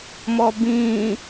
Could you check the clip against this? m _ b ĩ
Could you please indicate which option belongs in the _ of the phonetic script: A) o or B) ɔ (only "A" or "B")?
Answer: B